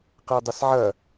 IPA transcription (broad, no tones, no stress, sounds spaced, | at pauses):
q ɛ dˤ ɐ s ʕ ɐ